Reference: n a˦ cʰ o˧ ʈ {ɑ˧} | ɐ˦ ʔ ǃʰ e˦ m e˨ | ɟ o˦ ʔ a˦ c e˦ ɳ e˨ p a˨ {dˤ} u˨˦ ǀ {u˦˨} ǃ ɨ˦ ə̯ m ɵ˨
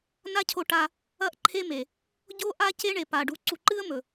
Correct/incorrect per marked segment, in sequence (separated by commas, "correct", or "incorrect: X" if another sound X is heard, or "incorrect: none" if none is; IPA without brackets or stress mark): incorrect: a˧, incorrect: ɖ, incorrect: u˨